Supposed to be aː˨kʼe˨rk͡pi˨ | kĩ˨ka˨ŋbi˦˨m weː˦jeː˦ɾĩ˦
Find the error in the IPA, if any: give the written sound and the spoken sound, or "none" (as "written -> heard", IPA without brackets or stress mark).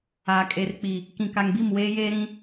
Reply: none